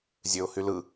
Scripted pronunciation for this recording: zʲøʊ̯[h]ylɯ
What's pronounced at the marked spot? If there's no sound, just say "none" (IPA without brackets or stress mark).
h